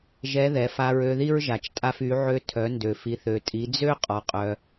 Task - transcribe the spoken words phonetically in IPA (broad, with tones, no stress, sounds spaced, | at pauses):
ʒ ɛ˧˥ ð ɛ˩˧ f a˧ ɹ ø˧ ð i˥ ɹ ʒ a˩ t͡ʃ tʼ a˧ f y˩˧ ʕ ø˧ tʰ œ˩˧ n d ø˩ f i˩˧ θ ø˩ tʼ i˩˧ d͡z ø˥ qʼ ɔ˩ qʼ œ˩